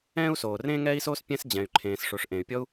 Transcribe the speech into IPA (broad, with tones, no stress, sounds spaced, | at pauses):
ɛ̃ː˥ u̯ s oː˩ r ẽː˥ ŋ ɛː˥ i̯ s oː˥ s pʲ ɛ̃˥ s d͡ʑ ɛ̃˩ y̯ ǃʰ ẽː˩ s ʂ o˩ ʂ ʔ ẽ˩ y̯ pʲ ɔ˥ u̯